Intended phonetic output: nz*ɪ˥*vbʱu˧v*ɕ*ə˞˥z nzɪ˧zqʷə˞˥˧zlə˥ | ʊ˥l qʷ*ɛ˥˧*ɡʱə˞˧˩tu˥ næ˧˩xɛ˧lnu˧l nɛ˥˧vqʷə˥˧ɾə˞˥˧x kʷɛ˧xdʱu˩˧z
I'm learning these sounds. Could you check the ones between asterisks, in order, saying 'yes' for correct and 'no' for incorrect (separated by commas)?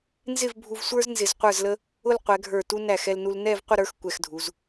no, no, no